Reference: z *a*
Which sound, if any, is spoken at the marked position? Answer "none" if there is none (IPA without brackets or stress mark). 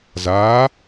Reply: aː